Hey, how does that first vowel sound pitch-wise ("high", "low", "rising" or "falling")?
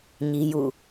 high